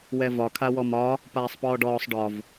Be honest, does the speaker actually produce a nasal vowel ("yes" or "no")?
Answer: no